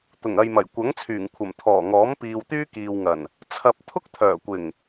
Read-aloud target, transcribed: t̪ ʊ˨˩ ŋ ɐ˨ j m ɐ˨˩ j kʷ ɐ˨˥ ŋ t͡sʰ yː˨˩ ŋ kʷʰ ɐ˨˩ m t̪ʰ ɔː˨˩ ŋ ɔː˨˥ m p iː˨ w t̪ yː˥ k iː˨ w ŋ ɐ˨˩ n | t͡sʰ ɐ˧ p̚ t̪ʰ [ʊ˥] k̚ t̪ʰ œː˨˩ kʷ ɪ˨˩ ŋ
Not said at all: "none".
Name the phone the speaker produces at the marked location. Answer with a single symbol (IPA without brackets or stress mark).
ʊ˥